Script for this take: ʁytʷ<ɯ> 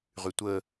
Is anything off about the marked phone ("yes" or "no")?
yes